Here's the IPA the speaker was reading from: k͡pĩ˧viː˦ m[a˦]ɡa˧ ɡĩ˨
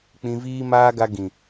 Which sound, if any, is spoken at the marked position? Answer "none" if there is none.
aː˦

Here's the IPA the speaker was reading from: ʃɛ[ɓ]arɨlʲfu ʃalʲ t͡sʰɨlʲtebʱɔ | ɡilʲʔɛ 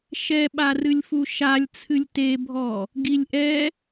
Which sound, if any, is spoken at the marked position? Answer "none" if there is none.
ɓ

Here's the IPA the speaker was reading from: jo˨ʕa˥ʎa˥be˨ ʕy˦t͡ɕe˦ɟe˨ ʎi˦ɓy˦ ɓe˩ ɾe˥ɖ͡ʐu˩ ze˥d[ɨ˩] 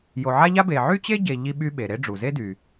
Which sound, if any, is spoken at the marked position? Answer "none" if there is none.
y˩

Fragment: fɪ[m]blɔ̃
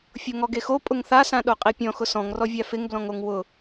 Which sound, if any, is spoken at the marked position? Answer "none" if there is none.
ŋ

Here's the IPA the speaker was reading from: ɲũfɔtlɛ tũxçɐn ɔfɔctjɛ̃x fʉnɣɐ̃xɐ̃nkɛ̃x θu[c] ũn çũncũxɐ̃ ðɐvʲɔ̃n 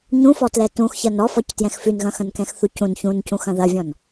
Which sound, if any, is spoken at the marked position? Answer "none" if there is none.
c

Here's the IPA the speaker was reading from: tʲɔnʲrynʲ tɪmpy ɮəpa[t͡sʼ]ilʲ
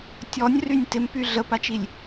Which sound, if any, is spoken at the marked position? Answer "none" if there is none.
t͡ʃ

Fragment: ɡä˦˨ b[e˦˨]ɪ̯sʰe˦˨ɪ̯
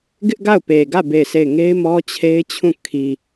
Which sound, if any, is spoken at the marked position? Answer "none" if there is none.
e˦˨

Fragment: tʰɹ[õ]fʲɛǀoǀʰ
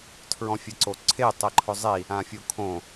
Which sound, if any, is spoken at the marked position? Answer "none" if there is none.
ɔ̃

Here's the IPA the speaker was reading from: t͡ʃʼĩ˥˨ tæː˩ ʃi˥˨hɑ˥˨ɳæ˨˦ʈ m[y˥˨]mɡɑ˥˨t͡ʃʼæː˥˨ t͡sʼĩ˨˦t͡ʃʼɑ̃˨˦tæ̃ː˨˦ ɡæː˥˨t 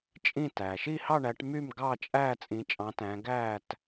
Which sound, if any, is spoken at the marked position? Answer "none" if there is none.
y˥˨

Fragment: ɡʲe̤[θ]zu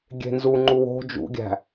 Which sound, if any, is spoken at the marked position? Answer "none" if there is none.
n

